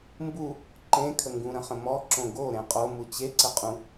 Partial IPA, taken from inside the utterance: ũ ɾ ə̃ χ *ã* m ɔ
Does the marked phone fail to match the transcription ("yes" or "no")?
yes